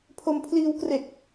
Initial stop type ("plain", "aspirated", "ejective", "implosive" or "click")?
aspirated